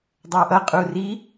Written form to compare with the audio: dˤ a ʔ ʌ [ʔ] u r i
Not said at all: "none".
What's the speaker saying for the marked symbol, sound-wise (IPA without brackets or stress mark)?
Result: qʼ